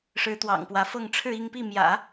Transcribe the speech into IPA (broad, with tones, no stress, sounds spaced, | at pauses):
ʂ ɻ̩˧˥ t̪ w ɑ̰˨˩ ŋ p w ä˧˥ f ɤ˥˧ ŋ ʈ͡ʂʰ ɻ̩˥˧ i˥˧ ŋ p i˥˩ m j ä̰˨˩˦